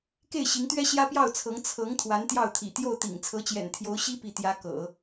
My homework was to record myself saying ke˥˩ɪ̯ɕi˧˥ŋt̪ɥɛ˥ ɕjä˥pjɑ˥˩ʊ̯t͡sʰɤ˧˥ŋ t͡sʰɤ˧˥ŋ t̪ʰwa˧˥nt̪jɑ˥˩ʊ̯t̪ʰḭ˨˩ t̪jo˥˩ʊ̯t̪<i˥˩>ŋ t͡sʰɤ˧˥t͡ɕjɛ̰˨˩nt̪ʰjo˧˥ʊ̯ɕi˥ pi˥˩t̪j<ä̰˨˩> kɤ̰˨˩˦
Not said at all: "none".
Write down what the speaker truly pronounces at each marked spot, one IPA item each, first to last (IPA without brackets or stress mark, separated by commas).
ḭ˨˩, ä˥